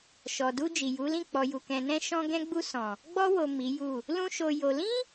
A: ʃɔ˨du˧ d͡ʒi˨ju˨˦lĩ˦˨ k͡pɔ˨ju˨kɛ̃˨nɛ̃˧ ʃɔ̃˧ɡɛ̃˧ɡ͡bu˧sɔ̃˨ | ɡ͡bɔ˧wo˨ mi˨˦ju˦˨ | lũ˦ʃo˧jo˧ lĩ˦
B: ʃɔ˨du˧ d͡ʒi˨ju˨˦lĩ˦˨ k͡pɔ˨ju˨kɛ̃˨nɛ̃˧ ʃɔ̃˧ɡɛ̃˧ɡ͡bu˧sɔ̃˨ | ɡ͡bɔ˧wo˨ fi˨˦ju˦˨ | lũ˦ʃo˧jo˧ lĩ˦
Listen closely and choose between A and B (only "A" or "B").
A